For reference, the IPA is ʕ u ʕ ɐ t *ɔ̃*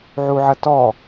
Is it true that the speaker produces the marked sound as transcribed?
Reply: no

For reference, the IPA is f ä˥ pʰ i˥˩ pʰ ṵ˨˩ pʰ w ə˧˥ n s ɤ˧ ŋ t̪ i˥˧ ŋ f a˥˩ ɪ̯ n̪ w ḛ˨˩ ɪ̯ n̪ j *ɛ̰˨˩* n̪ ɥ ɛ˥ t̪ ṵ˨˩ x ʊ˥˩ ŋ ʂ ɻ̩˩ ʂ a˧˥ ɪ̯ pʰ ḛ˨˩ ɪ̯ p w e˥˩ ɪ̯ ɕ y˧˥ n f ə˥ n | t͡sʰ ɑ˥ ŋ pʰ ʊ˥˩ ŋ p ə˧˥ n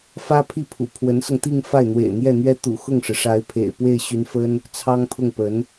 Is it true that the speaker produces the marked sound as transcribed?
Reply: no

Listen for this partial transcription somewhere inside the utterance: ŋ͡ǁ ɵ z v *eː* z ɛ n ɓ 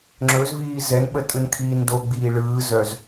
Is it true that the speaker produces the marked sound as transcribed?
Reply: no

